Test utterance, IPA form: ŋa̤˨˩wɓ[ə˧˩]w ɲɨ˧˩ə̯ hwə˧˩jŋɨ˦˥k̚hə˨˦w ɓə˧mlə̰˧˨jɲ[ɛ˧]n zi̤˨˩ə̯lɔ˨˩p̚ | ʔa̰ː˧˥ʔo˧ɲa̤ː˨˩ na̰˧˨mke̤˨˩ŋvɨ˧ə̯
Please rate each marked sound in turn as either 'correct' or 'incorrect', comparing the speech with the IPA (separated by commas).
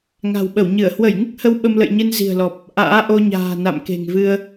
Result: correct, incorrect